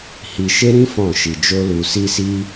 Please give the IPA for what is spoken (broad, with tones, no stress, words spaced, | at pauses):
hi˧ʃe˦ɾĩ˦ fɔ̃˦˨ʃi˧d͡ʒo˦ lu˧si˦si˦